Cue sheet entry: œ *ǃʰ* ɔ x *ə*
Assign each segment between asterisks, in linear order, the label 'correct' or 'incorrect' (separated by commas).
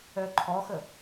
correct, correct